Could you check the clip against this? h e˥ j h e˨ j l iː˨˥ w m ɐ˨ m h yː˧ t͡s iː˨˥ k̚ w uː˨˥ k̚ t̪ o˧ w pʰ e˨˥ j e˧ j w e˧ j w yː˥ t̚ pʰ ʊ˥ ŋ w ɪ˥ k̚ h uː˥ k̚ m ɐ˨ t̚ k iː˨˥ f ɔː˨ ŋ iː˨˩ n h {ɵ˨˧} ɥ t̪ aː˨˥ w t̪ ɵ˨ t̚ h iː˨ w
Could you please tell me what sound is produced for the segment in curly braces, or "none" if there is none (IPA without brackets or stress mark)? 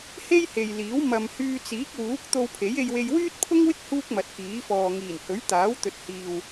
ɵ˨˥